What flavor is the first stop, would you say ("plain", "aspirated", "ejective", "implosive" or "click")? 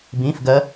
plain